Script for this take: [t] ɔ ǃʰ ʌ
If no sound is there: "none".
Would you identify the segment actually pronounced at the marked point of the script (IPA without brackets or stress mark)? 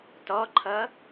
t